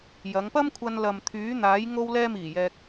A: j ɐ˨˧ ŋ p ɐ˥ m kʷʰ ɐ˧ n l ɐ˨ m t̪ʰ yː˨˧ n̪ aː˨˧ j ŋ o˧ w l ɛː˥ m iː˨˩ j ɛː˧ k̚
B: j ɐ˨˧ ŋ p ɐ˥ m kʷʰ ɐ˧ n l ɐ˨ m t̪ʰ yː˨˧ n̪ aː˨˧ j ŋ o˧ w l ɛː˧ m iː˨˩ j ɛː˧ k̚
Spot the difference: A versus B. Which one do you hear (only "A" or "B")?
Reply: B